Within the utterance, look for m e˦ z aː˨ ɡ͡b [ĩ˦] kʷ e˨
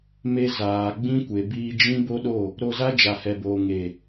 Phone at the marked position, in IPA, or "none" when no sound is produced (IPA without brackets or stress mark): ĩ˦